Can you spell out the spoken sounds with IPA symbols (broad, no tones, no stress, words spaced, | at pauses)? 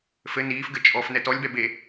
fɘ niːfɡɘ t͡ʃʼɔf nɛtɔlʲbɛ be